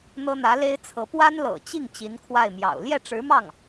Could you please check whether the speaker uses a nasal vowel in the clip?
no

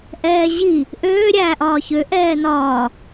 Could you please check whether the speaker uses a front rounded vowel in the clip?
yes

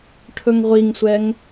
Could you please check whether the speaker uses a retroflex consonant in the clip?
yes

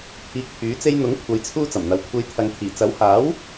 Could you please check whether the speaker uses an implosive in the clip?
no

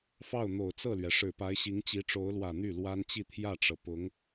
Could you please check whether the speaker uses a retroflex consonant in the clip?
yes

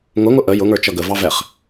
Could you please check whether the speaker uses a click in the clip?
no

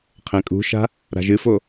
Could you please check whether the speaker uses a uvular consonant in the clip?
yes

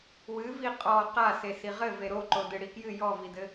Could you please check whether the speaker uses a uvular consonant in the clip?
yes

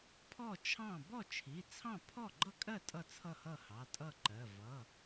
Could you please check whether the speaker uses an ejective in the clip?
yes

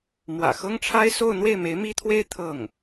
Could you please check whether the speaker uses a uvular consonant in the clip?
no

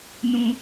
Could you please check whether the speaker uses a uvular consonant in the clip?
no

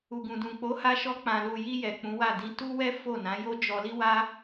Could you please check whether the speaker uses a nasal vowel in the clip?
yes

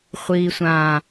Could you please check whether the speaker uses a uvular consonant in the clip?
yes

